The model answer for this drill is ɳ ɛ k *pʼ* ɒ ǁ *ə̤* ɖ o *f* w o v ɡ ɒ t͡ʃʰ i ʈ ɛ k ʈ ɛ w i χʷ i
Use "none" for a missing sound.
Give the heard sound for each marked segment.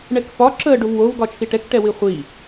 f, ə, v

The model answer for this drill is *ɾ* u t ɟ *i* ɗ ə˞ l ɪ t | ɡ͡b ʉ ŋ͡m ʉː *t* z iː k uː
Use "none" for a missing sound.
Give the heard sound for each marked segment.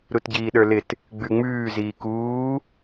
ɾ, iː, none

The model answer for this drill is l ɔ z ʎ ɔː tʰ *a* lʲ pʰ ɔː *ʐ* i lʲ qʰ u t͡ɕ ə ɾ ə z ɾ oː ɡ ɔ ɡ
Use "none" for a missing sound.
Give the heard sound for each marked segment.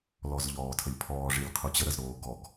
ə, ʐ

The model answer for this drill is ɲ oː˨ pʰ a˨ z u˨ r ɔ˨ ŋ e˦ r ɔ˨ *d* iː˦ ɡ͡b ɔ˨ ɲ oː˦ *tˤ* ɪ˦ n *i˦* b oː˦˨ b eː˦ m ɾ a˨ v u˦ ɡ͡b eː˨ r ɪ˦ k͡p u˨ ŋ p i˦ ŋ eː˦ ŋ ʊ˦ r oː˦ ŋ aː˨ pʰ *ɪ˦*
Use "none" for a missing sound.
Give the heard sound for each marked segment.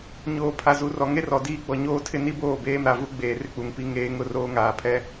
d, tʰ, i˦, ɛ˦

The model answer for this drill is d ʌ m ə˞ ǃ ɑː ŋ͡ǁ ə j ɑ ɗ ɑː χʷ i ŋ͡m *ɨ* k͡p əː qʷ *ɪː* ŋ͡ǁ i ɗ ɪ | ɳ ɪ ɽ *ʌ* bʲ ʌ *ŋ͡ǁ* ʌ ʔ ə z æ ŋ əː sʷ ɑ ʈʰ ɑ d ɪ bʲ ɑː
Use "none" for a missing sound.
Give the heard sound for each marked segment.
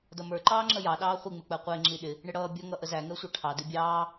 ɪ, ɪː, ʌː, ŋ

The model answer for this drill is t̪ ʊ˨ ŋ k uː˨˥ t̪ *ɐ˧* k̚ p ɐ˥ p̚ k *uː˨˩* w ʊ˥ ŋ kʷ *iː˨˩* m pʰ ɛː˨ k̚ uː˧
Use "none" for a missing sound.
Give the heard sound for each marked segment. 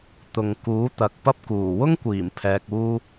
ɐ˨, uː˨˩, iː˨˩

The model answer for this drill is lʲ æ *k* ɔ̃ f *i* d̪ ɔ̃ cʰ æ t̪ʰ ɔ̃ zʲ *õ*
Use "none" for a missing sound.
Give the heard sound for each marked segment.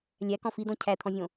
k, i, õ

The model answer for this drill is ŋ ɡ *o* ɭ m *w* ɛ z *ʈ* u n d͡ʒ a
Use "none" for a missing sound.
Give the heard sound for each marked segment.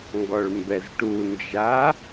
ɔ, b, ʈ

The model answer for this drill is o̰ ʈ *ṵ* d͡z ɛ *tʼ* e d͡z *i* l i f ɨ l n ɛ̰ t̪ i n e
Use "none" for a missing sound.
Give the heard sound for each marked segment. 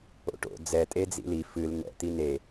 o̰, tʼ, ḭ

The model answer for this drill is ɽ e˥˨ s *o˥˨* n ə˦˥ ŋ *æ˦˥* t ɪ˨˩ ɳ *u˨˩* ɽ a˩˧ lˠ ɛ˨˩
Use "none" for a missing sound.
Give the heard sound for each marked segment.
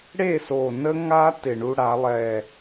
o˨˩, a˦˥, u˧

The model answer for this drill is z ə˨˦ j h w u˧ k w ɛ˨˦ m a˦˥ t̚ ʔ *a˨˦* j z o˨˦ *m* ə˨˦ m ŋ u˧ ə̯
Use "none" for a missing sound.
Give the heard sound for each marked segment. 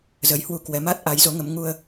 a˨˦, ŋ

